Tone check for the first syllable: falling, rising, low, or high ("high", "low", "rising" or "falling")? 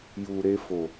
low